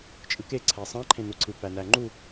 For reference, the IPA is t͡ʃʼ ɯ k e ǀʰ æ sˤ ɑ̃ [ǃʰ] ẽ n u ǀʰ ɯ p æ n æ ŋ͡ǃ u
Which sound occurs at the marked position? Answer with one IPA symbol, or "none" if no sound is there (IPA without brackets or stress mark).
ǃʰ